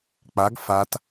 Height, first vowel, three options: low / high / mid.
low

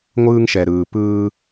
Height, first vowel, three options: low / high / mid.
high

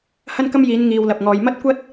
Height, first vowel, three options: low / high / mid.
low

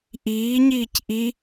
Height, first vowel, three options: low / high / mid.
high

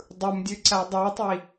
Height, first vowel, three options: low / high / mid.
high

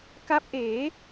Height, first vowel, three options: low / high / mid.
low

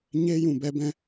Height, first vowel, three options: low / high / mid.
mid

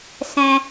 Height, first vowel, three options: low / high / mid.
mid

